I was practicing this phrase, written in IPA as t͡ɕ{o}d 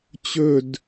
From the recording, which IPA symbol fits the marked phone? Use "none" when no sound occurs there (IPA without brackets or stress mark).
ɵ